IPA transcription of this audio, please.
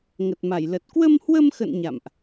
ŋ ə˨˩ t̚ m a˧˩ j l ə˨˩ t̚ k w ə˧ m h w ə˧ m x ə̰˧˨ n ɲ a̰˧˨ m ʔ

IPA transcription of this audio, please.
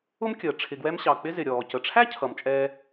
ʊ˥ m kʲ əː˩ ʈ͡ʂʰ ɪ˨ ɡ w ɛ˦ m ɕ ɑ˩ k͡p ɪ˦ z ɪ˩ ɾʲ ɔː˩ c ə˩ ʈ͡ʂʰ æ˥ cʰ ʌ˩ m t͡ʃʼ ɛː˨

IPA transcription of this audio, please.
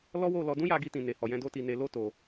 l ɔ˦ w o˦˨ l ɔ˧ d ũ˦ j a˧ ɡ i˧ t ĩ˨ n e˨ h ɔ˨ j ɛ̃˧ d o˦ t i˧ n e˧ l o˦ t o˧

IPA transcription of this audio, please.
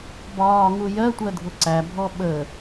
b ɒː ŋ u j ɜ tʷ ɜ dʱ ʊ ǀ æ bʱ ɔ ɓ əː

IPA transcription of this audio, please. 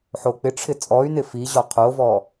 ħ o k͡p ɪ ʈ͡ʂʰ ɪ t͡sʼ ɔ y̯ n ɪ f i ʑ ɔ qʰ o v ɔ

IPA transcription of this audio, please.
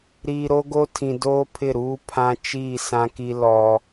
ɾ iː˨ ɾ o˦ ɡ o˦ tʰ ĩ˨ d oː˦ pʰ ɪ˦˨ ɾ uː˦ pʰ ã˦ t͡ʃ iː˦˨ s ã˦ k i˦ l ɔ˦

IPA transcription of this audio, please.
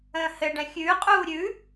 ə̃ː h ɘ ɖ ɛ̃ xʲ ʉː qʼ uː ɾʲ ʉ

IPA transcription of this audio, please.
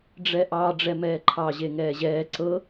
ɖ͡ʐ ɛ ʔ ɑ ɖ͡ʐ ɛ m ɛː ǃʰ ɑ ʑ e ŋ ɛː ʑ ɛː ǀ ɤ

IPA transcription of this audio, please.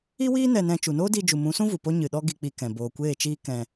i˦ w iː˦ n ɛ˧ n ɛ̃˧ t͡ʃ u˨ n oː˦ d iː˧ d͡ʒ u˨ m ũ˨˦ s ũ˦ v u˨ p o˦ ɲ ɨ˨ ɗ ɔ˦ ɡ i˧ k͡p i˧ k ɛ̃˨ b oː˨ kʷ eː˦˨ t͡ʃ iː˦ k ɛ̃˧

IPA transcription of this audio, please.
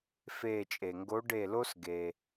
f eː˦˨ t͡ʃʼ e˩ ŋ ɡ o˧˥ ɖ e˦˨ l o˥ s ɡ e˩

